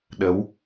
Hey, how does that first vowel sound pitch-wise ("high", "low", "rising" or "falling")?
rising